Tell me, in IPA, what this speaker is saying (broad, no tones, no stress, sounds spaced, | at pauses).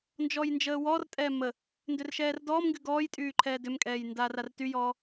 n d͡ʒ ɔ j n d͡ʒ əː w ɔ r tʼ ɛː m ə | n d ʏ r ʃ ɛː r d ɔː m ŋ ɡ y ɡ ɔː j tʼ yː ǃʰ ɛː d ʏ m kʼ ɛː j n d aː r a r t y j ɔː